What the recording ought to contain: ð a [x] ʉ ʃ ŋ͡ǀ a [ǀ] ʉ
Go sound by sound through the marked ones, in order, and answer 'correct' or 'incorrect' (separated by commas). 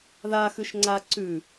correct, correct